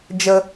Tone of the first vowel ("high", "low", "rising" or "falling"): low